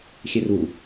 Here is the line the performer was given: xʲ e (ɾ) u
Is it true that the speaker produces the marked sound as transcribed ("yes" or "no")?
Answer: no